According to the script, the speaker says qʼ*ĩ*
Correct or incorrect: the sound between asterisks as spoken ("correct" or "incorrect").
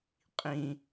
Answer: correct